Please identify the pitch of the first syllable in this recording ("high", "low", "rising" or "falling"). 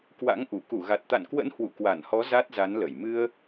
rising